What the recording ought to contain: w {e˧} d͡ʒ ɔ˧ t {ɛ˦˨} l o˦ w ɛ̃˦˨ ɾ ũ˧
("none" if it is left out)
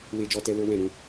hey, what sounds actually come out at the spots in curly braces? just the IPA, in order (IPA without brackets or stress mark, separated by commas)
e˧, ɛ˧